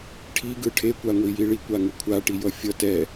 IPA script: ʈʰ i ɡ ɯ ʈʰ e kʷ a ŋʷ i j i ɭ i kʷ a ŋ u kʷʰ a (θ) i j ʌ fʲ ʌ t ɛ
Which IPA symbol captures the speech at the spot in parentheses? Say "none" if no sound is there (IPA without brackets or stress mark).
ʈ